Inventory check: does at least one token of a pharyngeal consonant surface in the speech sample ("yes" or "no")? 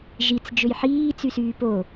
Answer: yes